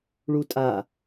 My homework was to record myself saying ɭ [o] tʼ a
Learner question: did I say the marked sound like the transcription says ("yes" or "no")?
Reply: no